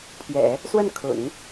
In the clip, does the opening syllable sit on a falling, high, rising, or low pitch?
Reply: low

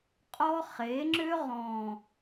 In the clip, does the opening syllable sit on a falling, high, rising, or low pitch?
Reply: high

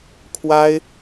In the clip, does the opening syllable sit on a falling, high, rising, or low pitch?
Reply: high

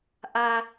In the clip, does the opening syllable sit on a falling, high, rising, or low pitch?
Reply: low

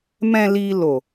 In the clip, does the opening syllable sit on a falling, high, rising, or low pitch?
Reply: low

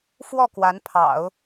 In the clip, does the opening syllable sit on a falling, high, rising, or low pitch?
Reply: falling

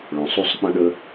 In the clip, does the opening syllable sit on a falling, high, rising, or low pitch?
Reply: low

